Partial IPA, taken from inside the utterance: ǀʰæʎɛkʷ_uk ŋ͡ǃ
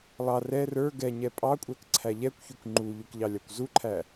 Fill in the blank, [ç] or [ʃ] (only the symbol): ç